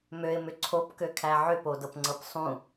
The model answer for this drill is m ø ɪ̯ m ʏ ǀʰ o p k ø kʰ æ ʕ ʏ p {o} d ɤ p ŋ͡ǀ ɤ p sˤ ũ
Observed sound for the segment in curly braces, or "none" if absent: o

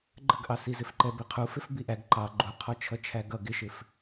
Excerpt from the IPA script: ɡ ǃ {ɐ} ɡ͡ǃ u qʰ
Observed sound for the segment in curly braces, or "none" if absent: ɑ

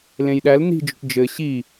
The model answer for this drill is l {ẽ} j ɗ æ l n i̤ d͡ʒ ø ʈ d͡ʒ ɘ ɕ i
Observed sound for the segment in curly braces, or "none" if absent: ẽ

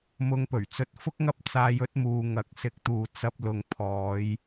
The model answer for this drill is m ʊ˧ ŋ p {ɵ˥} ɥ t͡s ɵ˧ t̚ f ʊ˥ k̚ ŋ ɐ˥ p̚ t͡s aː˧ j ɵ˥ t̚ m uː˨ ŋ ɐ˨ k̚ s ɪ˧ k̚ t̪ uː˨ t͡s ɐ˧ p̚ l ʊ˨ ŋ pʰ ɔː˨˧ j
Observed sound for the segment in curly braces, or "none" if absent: ɵ˨˩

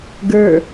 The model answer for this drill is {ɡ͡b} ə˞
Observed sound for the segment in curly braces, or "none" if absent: ɡ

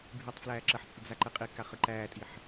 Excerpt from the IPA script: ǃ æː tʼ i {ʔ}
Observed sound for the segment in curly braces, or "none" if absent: ħ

